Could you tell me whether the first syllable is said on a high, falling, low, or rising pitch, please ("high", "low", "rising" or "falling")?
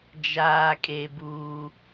high